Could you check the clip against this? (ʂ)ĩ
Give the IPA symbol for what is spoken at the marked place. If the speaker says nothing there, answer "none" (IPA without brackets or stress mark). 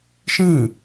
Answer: ʃ